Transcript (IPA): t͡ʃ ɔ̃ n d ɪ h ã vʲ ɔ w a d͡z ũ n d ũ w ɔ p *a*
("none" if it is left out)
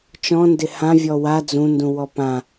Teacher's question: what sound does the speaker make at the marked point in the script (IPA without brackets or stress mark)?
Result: ã